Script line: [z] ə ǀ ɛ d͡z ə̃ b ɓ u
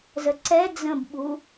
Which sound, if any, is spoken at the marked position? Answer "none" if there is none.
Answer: z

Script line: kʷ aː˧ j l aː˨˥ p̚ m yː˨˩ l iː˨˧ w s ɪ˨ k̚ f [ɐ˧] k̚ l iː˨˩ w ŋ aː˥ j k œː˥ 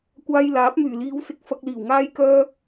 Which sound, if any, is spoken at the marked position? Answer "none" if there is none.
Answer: ɐ˧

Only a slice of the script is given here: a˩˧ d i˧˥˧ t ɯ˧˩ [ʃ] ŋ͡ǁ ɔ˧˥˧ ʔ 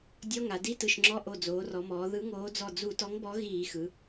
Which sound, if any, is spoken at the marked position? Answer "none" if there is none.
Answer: ʃ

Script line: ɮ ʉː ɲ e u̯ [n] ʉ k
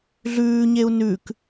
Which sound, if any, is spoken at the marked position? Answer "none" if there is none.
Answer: n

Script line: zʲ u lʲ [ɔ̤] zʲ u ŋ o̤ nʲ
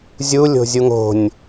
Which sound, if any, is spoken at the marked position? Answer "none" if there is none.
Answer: o̤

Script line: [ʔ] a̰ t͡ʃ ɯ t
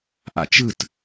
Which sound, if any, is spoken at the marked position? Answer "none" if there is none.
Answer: ʔ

